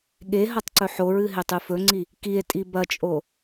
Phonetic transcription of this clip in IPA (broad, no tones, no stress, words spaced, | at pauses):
ɠeɦɐtˤ ǀɵħoɹɨ ɦetˤʉfɵŋ͡ǀi | kie̯tʼi bɐt͡ʃʼo